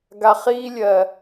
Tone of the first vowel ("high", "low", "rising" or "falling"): low